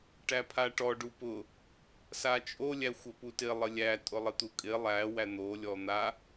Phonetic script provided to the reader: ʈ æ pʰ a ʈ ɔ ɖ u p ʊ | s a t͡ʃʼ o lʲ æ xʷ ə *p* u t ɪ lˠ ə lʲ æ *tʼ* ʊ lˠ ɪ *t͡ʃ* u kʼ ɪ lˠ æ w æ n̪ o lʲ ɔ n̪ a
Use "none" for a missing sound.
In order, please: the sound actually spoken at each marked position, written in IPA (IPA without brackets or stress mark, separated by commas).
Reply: p, tʼ, t̪